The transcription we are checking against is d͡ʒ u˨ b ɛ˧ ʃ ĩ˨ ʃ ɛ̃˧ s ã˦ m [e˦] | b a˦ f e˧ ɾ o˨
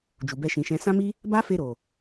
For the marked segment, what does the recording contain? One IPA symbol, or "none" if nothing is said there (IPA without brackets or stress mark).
i˦